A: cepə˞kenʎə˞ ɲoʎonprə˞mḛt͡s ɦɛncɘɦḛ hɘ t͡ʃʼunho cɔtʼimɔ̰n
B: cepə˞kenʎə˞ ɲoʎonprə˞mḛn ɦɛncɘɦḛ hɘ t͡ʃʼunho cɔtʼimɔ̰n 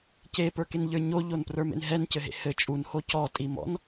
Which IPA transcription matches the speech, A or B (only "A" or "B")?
B